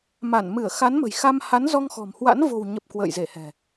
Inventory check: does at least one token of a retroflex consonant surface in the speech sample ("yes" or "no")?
no